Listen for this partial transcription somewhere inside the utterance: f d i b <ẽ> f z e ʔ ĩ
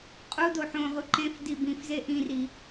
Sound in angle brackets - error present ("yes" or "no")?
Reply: yes